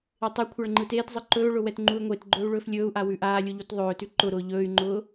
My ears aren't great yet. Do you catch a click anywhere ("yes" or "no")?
yes